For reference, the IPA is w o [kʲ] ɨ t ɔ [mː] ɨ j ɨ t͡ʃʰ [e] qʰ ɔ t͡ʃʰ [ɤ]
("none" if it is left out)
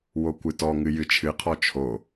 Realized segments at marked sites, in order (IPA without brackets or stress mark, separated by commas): kʷ, ŋ, ɨ, o